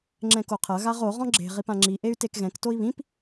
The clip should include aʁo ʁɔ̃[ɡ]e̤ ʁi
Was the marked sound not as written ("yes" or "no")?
yes